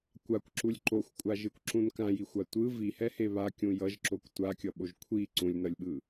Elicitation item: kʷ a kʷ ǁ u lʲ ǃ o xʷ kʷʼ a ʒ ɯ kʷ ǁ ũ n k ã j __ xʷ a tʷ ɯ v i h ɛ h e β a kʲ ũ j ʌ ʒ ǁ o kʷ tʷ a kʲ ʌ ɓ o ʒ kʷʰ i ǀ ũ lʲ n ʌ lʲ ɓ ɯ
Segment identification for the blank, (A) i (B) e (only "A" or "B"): A